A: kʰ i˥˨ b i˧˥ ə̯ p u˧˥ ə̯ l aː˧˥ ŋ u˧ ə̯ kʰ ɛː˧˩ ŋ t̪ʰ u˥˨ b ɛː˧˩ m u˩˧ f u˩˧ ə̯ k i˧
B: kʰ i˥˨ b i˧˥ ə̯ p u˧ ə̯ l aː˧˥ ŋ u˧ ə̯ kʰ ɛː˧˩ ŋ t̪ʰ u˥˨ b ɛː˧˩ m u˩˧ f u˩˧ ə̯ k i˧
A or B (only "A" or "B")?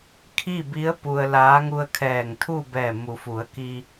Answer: B